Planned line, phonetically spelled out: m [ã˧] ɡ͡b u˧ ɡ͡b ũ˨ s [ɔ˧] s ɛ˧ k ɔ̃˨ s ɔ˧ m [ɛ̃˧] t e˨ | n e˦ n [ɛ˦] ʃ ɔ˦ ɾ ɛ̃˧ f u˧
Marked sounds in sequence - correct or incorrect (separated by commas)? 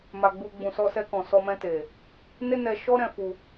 incorrect, correct, correct, incorrect